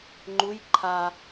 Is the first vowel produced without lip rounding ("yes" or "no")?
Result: no